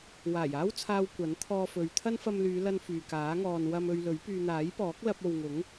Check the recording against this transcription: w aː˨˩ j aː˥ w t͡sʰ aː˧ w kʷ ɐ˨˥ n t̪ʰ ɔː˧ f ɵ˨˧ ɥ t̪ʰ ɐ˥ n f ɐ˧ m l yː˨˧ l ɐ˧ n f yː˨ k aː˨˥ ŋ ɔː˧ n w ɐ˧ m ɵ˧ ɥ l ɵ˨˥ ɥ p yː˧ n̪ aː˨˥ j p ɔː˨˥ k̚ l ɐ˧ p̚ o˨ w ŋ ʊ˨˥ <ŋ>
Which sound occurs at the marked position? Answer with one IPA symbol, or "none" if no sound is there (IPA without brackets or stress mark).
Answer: ŋ